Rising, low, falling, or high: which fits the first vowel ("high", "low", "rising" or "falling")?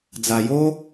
low